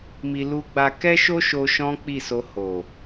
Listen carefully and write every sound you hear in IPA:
m i˧ l u˧ ɡ͡b a˧ k ɛ˦ ʃ o˦ ʃ o˧ ʃ ɔ̃˦ k͡p i˦˨ s o˧ h o˨

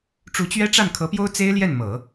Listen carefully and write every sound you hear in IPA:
ʈ͡ʂ u˧˥ t͡ɕ ɥ ɛ˥ ʈ͡ʂ a˥˩ n kʰ ɤ˧˥ p j o˥ ʊ̯ t͡s e˥ ɪ̯ l j ɛ˥˩ n m ɤ˨˩˦

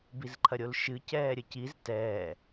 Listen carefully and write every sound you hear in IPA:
b i z ǃʰ ɐ ɾʲ o l ʃ ɨ c ɛː ɾʲ ɘ c i z t ɛː

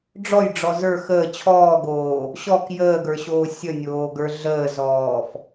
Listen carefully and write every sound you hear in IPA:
ɖ͡ʐ ɔ j ɖ͡ʐ ɔ z ə˞ x əː t͡ɕʰ ɔː ɡ oː | ɕ ɔ k j əː ɡ ə˞ ɕ oː sʲ ə nʲ oː ɡ ə˞ ɮ əː z ɔː f

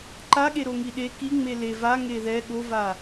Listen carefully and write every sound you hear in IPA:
ǃ a ɠ e ɾ o ŋ i ɗ e k i ŋ͡m e l e v a ŋ e ð ɛ ɠ o v a

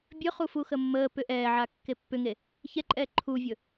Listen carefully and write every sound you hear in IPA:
bʲ ɵ χ u f u x ə mː əː p ʏ ʔ ɛː ʕ a kː e pː ʏ ŋ e | ç ɛ ǃʼ ɛː ǃʰ u vʲ ɵ

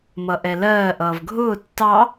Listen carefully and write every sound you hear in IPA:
m ʌ ʔ ɛ l ɜː ʔ ʌː v ɡʱ ʊː tː ɑ

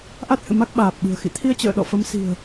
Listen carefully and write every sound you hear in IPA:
ʔ a˦˥ t̚ h ɨ̰˧˨ m a˦˥ k̚ ɓ aː˨˩ p̚ ɓ ɨ̤˨˩ ə̯ x ḭ˧˨ t̪ʰ i˧ ə̯ t͡ɕ ə̰ː˧˨ ɗ ɔ̰˧˨ f ə˨˦ m s i̤˨˩ ə̯

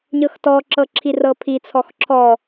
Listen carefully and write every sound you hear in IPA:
ɲ ɤ x t ɔ ǁ ɤ ǁʰ i r ɤ pʰ i t͡sʰ ɔ x ǁʰ ɔ

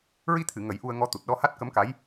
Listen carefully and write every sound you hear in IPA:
ɹ i˧ t̪ʰ ɨ˨˩˨ ŋ ə˨˩˦ j ʔ u˧ ə̯ ŋ ɔ˧ t̪ u˨˩ t̚ ɗ ɔ˧ h a˦˥ t̚ k ə˧˥ m k a˧˥ j

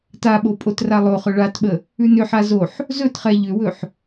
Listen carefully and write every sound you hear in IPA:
t a ɓ o pʼ o t r a lˠ o χ ɵ ɭ a t ɓ ə | ʉ n ʏ ħ a z o ħ | z ɵ t χ ɛ ʎ ʏ w ɵ ħ

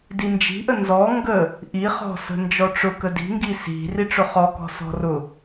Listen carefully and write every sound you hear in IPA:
d i n d͡ʒ i̤ ʔ ə n z ɔ ŋ ɡ ə | ʔ i χ ɔ̤ s ə̤ n d͡ʒ ɔ ʈ͡ʂ ʊ k ə d i̤ ŋ ɡ i s i̤ r i ʈ͡ʂ ʊ χ ɔ k ɔ̤ s ɔ̤ r ʊ

